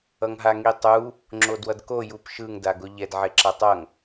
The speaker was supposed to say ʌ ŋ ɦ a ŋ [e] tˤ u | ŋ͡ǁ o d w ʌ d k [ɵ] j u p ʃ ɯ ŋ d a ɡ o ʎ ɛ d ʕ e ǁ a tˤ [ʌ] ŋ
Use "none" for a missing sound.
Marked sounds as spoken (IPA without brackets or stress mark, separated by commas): i, o, ʌ